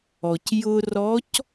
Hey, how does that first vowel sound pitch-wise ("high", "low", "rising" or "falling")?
low